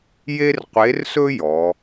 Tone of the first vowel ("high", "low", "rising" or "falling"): high